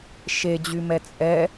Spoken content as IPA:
ʃ e d͡ʑ y m ɛ t͡sʼ ɛ

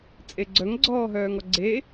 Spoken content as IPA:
t͡sʼ e ɡ͡ǀ œ ŋ ɡ͡ǀ ɔː ɦ œː ŋ ɔ ɡ͡ǀ e

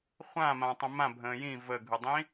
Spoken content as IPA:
χʷ ã m ã tˤ ə̃ m ã bʱ ə̃ː j ĩ v ə ɡʱ ɯ dˤ ĩ

